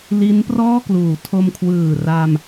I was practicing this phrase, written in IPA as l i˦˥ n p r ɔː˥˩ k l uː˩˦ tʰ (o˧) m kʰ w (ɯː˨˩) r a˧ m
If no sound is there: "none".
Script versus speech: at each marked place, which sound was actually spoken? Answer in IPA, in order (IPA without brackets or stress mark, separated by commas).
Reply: o˧, ɯː˨˩